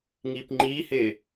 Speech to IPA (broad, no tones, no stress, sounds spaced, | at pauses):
ŋ iː p ŋ͡ǃ iː h ɪː